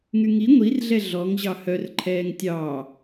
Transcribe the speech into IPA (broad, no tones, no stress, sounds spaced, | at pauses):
ŋ y ŋ i ŋʷ i r ɮ ɛ ɮ ɔ ŋ ʑ ɑ h œ r ǃʰ ɛː ŋ tʲ ɑː